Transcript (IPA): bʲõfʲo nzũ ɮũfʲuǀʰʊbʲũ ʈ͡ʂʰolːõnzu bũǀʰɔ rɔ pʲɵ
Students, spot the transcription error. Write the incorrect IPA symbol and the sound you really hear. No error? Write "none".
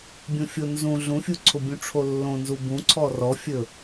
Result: pʲ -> fʲ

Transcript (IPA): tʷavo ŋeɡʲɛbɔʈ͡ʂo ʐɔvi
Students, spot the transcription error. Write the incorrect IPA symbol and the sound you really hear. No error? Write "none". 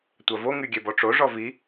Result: e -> y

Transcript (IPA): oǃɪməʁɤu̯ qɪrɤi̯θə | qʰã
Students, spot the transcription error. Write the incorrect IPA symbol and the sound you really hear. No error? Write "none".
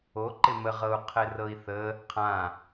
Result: q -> qʰ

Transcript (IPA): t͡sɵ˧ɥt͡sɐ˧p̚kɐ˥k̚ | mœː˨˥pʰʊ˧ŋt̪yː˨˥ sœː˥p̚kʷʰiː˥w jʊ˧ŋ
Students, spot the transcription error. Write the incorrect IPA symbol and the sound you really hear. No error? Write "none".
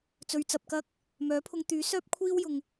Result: none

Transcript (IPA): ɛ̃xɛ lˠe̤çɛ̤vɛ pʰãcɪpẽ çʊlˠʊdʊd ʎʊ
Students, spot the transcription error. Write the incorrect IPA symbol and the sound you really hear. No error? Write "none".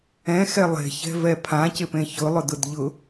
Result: none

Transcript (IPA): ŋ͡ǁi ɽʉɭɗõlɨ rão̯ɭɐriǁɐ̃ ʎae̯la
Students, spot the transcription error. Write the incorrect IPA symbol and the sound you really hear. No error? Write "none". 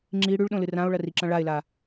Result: ʎ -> ɭ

